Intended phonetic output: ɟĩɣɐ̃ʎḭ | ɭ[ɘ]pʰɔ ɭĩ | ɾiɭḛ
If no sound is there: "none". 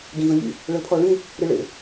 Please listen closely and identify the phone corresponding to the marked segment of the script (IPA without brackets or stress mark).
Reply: ɘ